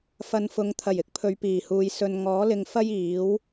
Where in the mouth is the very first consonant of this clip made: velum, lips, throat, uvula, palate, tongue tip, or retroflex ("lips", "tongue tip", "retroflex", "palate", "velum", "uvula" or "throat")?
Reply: lips